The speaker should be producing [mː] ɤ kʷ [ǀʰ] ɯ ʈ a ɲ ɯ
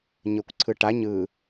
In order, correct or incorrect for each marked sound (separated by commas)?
incorrect, correct